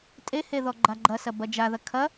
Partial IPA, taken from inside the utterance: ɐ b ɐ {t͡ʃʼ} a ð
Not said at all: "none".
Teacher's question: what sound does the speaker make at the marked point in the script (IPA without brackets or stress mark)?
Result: d͡ʒ